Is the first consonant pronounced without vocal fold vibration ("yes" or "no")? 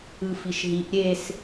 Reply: yes